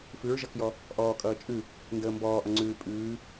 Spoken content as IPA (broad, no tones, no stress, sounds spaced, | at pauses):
f ʉ ɹ ʒ ʌ k j ɔ | ʔ ɔː kʼ ʌː t͡ʃʼ ʉ | n d əː m b ɔː ʔ ʌ ŋ͡ǀ ʉː pʼ ʉː